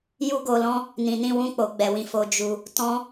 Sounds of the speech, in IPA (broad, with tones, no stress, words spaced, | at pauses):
ju˦ɡo˧lɔ̃˦ | nĩ˨nĩ˧wũ˧k͡po˨ ɡ͡bɛ˧wĩ˧ fo˧d͡ʒu˧ | tɔ̃˦